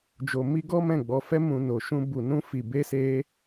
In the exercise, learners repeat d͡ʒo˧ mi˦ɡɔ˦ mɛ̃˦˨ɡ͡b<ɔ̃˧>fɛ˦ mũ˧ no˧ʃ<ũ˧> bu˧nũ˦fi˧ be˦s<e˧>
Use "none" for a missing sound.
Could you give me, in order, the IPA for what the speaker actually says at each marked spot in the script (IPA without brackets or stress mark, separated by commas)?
ɔ˧, ũ˦, e˦